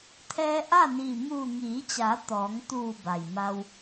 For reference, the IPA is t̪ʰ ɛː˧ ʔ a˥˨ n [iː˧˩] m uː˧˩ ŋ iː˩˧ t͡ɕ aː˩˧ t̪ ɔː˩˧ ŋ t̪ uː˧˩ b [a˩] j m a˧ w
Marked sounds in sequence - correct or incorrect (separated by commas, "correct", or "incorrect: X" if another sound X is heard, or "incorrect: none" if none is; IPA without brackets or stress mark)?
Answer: correct, correct